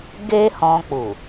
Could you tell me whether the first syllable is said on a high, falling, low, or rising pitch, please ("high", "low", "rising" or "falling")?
high